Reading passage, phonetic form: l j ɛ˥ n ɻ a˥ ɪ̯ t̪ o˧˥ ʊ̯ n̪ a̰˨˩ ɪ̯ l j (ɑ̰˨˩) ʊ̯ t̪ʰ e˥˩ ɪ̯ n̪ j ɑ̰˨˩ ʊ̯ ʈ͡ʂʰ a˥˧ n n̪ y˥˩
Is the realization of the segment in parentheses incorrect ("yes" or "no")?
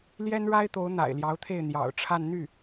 yes